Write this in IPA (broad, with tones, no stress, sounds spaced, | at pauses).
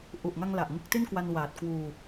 ʔ u˨˩ ʔ ŋ a˧ ŋ l a˨˩ ʔ ŋ ɯ˦˥ k̚ t i˥˩ n k w a˧ n w aː˨˩ t̚ k w uː˧